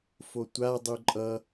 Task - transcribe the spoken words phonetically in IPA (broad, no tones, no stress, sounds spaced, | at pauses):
f o tʷ a dˤ u ǃʼ ʌ